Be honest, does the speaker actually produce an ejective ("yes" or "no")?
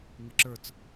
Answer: no